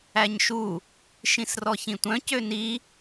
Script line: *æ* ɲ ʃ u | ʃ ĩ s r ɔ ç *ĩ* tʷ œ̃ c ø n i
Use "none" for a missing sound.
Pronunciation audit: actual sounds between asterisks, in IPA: æ, ĩ

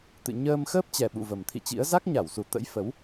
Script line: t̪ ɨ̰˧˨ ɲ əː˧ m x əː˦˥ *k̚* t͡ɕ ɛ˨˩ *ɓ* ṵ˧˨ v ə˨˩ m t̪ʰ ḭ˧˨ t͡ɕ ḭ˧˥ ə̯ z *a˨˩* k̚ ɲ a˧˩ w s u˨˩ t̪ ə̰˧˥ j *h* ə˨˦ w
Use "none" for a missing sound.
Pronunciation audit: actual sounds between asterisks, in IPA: p̚, ɓ, a˦˥, f

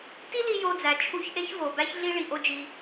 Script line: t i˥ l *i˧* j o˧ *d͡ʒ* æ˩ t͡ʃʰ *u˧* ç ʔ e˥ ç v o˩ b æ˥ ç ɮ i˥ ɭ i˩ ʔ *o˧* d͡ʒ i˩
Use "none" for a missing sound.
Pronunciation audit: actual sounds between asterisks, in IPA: i˧, d͡z, u˧, o˧

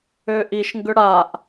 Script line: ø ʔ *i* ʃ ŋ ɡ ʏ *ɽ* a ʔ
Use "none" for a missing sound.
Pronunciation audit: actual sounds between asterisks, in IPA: i, ɽ

